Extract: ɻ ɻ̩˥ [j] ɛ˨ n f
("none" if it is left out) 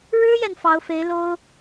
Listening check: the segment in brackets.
j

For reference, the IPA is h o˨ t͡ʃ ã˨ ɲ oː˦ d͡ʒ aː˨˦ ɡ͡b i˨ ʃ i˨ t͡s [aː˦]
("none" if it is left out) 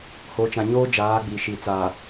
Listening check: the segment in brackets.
aː˨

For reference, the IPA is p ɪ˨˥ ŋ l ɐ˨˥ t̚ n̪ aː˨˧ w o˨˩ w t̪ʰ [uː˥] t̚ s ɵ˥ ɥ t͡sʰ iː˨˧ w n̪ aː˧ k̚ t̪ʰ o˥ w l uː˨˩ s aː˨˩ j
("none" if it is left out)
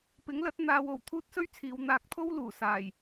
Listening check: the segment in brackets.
uː˥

